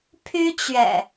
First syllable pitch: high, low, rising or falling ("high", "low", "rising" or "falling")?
high